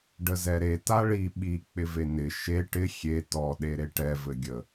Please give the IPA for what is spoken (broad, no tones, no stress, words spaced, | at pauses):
ɖəzɛɾe taɭi ɓi k͡pɪvenɪ ʃe ʈɪ xʲe tɔ ɗeɾeʈɛ vɘɡʲə